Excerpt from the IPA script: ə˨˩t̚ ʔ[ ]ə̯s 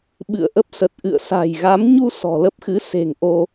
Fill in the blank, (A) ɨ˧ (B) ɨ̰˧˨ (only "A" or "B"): B